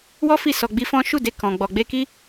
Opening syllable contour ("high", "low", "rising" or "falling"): high